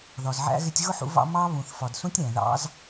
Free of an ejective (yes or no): yes